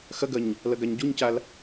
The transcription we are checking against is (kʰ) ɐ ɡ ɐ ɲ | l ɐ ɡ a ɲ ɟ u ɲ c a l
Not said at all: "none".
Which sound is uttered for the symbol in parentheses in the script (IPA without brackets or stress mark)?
x